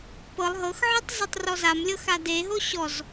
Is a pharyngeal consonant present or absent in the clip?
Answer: present